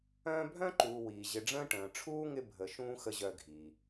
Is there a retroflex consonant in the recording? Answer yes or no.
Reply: yes